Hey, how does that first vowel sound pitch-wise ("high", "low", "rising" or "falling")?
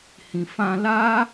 low